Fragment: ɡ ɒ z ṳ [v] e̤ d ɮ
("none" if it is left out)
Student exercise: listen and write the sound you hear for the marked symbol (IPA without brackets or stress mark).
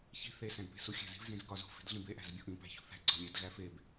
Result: f